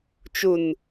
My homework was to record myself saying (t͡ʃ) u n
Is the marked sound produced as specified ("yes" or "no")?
yes